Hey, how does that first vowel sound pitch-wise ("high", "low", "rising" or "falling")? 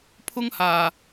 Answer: high